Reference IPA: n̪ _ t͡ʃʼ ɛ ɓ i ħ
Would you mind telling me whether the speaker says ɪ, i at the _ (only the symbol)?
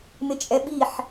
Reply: ɪ